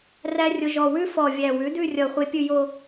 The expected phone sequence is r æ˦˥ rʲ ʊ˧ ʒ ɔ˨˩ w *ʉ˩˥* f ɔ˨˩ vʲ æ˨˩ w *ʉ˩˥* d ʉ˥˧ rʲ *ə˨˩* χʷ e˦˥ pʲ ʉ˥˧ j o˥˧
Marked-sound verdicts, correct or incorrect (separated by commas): incorrect, correct, incorrect